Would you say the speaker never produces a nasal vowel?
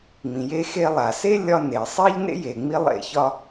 no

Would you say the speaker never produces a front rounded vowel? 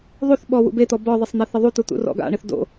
yes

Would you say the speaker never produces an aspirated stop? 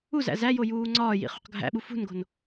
yes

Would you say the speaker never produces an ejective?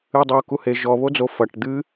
yes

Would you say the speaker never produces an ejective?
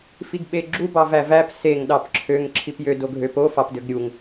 yes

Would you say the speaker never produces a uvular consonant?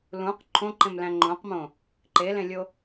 no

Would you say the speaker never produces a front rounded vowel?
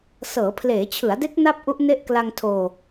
yes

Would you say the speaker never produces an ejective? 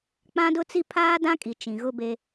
no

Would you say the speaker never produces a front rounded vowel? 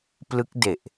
yes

